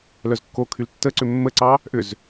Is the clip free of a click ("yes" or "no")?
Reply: no